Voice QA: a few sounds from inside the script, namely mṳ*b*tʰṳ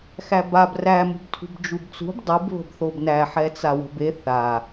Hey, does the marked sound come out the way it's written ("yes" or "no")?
yes